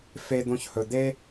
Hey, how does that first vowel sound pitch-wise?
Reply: high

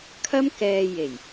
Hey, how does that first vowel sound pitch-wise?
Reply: high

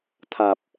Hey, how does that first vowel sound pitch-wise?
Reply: low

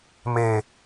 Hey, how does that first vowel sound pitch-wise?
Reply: low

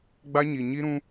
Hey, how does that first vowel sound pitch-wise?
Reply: high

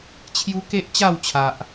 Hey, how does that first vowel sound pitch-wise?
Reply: high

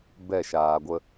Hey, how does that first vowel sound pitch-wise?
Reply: falling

